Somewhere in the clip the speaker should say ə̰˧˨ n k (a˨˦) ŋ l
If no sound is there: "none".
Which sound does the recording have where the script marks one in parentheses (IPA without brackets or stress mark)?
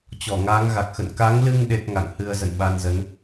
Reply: a˨˦